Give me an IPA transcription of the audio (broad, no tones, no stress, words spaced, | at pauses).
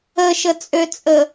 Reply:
əʃət͡sʼøt͡sʼə